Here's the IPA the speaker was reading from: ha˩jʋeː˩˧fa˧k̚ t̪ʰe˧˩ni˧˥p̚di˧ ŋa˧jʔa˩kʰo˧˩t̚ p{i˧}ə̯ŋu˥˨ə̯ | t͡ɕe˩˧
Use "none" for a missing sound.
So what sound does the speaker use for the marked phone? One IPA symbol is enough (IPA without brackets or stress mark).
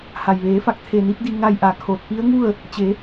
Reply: i˧˥